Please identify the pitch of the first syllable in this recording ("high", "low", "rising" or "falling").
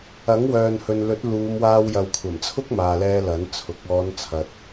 rising